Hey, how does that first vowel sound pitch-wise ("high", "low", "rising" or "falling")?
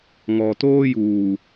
low